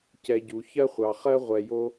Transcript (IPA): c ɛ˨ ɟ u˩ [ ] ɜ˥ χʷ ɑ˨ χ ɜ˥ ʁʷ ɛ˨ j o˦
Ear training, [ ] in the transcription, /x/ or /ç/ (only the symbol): ç